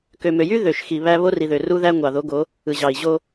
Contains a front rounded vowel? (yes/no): yes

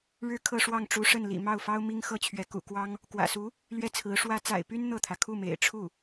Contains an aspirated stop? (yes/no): yes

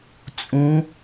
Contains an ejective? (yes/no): yes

